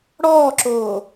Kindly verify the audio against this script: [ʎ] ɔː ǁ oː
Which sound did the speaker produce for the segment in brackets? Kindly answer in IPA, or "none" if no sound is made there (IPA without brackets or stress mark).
ɽ